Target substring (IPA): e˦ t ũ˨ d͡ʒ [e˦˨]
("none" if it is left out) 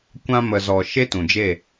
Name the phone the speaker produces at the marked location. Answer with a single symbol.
e˦˨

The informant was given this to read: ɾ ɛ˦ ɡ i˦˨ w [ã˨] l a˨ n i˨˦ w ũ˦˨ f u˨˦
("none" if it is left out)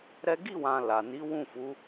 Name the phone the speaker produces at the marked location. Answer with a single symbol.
ã˨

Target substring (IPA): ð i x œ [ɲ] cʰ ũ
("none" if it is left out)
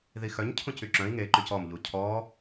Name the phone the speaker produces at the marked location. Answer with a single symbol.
ɲ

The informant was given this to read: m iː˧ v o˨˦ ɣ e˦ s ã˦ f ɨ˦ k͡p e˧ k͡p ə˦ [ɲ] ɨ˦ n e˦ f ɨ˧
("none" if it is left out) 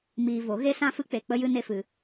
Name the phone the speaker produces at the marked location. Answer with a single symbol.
j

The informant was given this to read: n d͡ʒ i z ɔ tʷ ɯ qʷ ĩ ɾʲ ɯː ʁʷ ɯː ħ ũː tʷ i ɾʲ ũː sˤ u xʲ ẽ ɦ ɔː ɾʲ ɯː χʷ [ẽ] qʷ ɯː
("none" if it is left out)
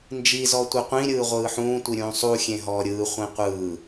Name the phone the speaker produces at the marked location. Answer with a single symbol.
ĩ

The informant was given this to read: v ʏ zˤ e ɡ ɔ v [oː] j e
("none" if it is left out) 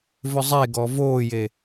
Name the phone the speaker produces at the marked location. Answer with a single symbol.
oː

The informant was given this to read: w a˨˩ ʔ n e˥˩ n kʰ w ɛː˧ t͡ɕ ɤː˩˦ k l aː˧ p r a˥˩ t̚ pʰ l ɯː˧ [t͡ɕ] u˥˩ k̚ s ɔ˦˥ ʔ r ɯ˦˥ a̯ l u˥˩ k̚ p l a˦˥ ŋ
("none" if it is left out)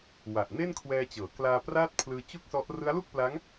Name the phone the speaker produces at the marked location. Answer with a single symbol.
t͡ɕ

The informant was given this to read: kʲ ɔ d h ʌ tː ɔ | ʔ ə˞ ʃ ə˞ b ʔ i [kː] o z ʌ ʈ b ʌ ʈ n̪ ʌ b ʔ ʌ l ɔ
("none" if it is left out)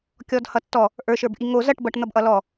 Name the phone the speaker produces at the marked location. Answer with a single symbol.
ŋ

